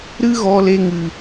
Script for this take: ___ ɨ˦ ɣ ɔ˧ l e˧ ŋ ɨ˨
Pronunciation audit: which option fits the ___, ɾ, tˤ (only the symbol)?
ɾ